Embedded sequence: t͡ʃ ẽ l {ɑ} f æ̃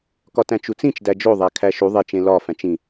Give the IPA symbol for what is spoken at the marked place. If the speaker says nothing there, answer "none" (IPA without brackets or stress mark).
ɒ